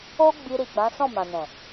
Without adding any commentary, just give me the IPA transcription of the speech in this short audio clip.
o˦ ɡ͡b i˧ ɾ i˨ ɡ͡b ã˨˦ s ɔ̃˦˨ m ã˨ n ɛ̃˨

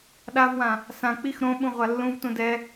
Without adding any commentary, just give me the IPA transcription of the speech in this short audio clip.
ɗ a v w ã | s ã k͡p i x ɾ õ ɓ ũ ʁʷ a lː ũ v t ũ d ɛ

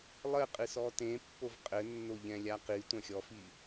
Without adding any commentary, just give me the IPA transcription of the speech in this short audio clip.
lˠ ɘ qʼ ɨ s ɔ t ẽ pː o v qʼ ɘ nː o ʎ ɛ̃ lʲ a q i tʷ ɐ̃ xʲ ɔ f i

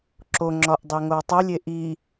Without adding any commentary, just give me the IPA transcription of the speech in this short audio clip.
ǁ o ŋ͡ǁ ɒ ʔ dˤ e ŋ o w tˤ o lʲ e ʔ i

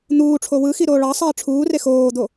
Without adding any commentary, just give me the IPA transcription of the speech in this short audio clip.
n̪ uː ʈ͡ʂʰ o w ɯ x i ɾ oː ɭ ɑ sˤ iː ʈ͡ʂʰ uː r e x oː d̪ o

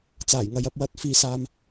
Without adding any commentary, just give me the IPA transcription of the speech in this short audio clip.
t͡s aː˨˩ j ŋ ɐ˨ j ɐ˧ p̚ w ɐ˨˥ t̚ f iː˨ s aː˨ m

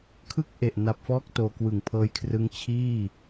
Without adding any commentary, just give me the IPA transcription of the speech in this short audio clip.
kʰ ɯ˥˩ k̚ ʔ e˨˩ ʔ n a˨˩ p̚ f ɔː˦˥ k̚ t oː˧ k w ɯ˨˩ ŋ pʰ ɤː˦˥ j kʰ r ɯ˦˥ ŋ t͡ɕʰ iː˥˩

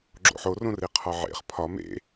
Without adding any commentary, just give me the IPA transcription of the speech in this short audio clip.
ɡ͡ǁ o̰ ħ o r õ r e qʰ ɒ ʕ ḛ χ pʰ ɒ m ḛ

